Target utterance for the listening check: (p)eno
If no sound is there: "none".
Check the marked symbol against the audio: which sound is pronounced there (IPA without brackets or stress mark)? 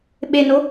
ɓ